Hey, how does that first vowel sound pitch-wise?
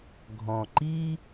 low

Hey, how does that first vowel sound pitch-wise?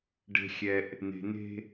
low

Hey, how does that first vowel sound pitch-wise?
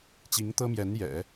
rising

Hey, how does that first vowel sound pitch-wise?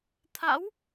rising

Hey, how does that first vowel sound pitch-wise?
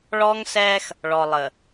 high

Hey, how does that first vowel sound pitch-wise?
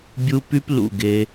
high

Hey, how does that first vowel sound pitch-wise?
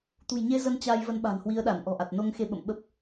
low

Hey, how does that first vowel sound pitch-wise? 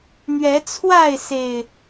rising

